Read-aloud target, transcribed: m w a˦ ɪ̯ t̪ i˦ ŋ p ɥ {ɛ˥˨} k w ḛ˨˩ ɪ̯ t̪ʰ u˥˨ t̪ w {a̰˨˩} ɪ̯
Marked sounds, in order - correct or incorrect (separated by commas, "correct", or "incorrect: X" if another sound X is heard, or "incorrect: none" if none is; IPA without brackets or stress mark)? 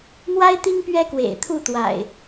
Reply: incorrect: ɛ˦, correct